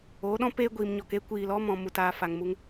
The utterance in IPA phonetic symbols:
oː˨˦ ɗ ɔ̃˦ p eː˦ ɡʷ iː˨ m ɲ ɔ˨ k e˦ kʷ iː˨ l ɔ˦ m ɔ̃˨ m u˨ t aː˨ f a˨ ŋ m u˧ ŋ

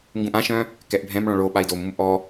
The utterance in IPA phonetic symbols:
ŋ ɡ ũ ʔ ã ʃ œ̃ | k ɛ ʔ bʱ ɛ̃ m ɭ ɔ̃ ɭ o ɓ a i̯ d o m ũ m ʔ ɔ

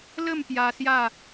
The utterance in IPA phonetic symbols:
l ə˥˧ m p j a˧ s j a˥˧

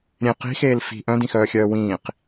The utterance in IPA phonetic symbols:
ɾʲ ẽ q i̤ x eː l f i̤ ʔ œ̃ d ĩ x œː xʲ œː w ĩː q

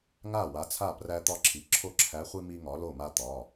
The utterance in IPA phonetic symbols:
ŋ a˥˩ w a˨˥ t͡sʰ a˥˩ p r æ˦ t̪ ɒ˥˩ ǁʰ i˩˧˩ ǁʰ o˦ ǁʰ æ˨˥ χʷ i˦ m i˦ ŋ ɒ˨˥ l o˥˩ m a˦ t̪ ɒ˩˧˩

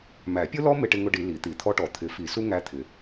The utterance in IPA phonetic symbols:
m æ˨˩˦ pʲ ʊ˥ l ɔ˥ m ɪ˥ ʈ ɪ˥ ŋ ʊ˥ ɖ i˨˩˦ l i˨˩˦ t̪ i˨˩˦ t̪ʰ ɔ˥ ʈ ɔ˨˩˦ t̪ʰ ɪ˨˩˦ f i˨˩˦ s u˥ ŋ æ˥ t̪ʰ ɪ˨˩˦

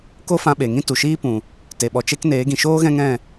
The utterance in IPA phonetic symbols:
k o˦ f ã˧ ɓ e˨ ŋ ĩ˦ t u˨ ʃ iː˦ p ũ˨ | t e˨ ɓ ɔ˨ t͡ʃ e˧ k n eː˨˦ ɡ ĩ˨ ʃ oː˦ ɣ ɛ̃˦ ŋ ɛ̃˦˨

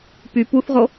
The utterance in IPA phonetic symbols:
p y p u θ ʁ o

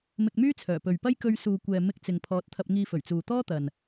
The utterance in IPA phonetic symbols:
m ɪ˧ k̚ m yː˥ t͡sʰ œː˨˩ p ɵ˨ ɥ p ɐ˥ j k ɵ˧ ɥ s uː˨ kʷ ɛː˨ m ɪ˧ k̚ t͡s ɪ˨ ŋ pʰ ɔː˨˥ t̚ t̪ʰ ɐ˧ p̚ ŋ iː˧ f ɵ˨˩ ɥ t͡s uː˨ t̪ ɔː˥ t̪ ɐ˨ n

